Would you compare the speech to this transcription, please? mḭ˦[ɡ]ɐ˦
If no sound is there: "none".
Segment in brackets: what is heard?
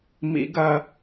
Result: ɡ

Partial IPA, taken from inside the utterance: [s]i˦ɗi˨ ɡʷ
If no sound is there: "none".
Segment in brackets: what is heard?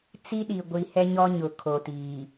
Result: t͡s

